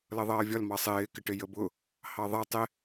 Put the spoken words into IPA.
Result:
l ʌ ðˤ ʌː vʲ ɒ l m ɑ sˤ ɪː k ɪ ʈ ɪ j ə b ʊ | h ɑ ðˤ ʌ tˤ ɪ

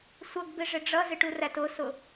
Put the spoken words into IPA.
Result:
sʷ ʌ ɡ b ɪ ʐ ɪ ɖ͡ʐ ʌ z ɪ ʈ u r æ t ʊ s ʊ

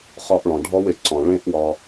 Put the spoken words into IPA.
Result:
χ ɒ˧ ʔ ɭ ɔ̃˨ ɖʱ ɔ˦ w ɪ˨ ǀ ɔ̃˨ ɭ ẽ˦ ʔ w ɒ˧

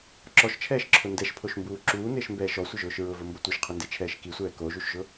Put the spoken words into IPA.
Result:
ǁ ɔ ʃ t͡ʃʰ ɛː ʃ ǁʰ ʊ n d ɛ ʃ pʰ o ʃ m b uː ǁ uː n ɪː ʃ m b ɛː ʃ ɔ sʷ ɪ ʒ ʊː ʃ ɹ ʊ v ʊ m b ʊ tʷ i ʃ qʰ ʊ n d e t͡ʃʰ ɛː ʃ k i sʷ ɛː k o ʒ u ʃ ʒ ʊ

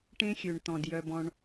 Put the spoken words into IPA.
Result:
ʈ ẽ˦ xʲ ø˨ ɳ t̪ ɔ̃˨ d j œ˧ b ɔ̃˧ ɳ

